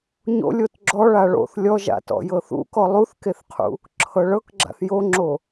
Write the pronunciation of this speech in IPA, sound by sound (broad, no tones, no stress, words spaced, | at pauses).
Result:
ɲo̰ lʲotɡ͡ǁɔ ɭaɭo̰θ lʲɔʒa̰tɔ̰ jɤθṵkɔ lˠuθkeθqʰṵ | ǁʰɤɭɤkɡ͡ǁa̰θ joŋ͡ǁo